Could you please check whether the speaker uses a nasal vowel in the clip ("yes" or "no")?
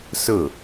no